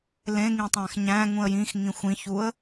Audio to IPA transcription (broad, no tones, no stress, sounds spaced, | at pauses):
l ẽ ŋ ĩ tˤ æ̃ x ɲ æ̃ ŋ ũ ə̯ j ĩ x ŋ ĩ xʷ ĩ ç u ə̯